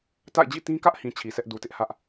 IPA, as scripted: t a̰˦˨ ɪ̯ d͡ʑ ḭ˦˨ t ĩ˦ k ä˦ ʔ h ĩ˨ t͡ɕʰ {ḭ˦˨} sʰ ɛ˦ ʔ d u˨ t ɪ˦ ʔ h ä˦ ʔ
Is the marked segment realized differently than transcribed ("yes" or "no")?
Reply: yes